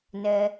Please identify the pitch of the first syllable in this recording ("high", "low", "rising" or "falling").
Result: low